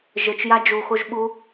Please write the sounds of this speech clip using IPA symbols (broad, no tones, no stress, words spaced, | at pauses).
ʒɘt͡ʃja d͡ʒuxoʒɓu